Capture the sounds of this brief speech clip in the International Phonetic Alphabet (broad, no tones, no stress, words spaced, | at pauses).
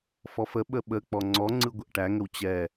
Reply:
fɔfəɓə ɓək͡pɔ ŋ͡ǀɔŋ͡ǀɯ ɡʷəʔʈæŋəw t͡ɕɛ